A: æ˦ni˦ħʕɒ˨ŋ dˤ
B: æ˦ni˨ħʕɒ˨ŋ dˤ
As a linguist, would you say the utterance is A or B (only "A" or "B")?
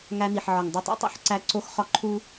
B